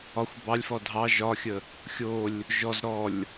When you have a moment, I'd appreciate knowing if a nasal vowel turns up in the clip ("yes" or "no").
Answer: no